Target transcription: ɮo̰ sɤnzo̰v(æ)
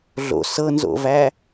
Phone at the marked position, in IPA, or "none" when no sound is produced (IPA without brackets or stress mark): æ